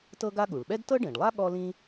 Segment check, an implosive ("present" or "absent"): present